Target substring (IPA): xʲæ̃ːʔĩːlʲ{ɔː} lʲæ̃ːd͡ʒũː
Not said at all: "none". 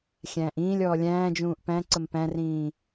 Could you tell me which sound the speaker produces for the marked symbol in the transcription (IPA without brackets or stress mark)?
ɔː